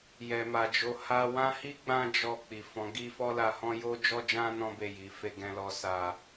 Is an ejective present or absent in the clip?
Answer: absent